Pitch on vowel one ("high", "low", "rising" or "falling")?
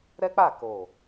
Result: high